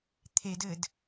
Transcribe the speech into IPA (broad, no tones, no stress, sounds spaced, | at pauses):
t̪ʰ e d ɘ d